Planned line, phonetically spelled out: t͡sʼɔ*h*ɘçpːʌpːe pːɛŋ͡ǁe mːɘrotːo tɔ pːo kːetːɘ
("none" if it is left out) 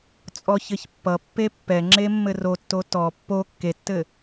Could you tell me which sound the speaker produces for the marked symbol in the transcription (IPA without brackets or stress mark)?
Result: ç